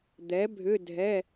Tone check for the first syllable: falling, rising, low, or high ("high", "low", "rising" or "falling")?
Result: rising